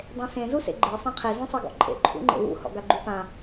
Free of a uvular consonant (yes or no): no